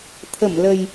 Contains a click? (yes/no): no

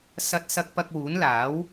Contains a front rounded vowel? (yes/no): no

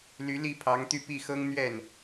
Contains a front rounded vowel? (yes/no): yes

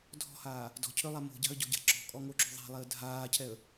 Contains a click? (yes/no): yes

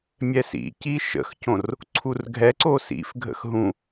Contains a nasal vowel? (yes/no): yes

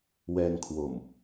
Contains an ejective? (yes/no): no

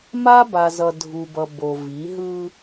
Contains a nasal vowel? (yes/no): no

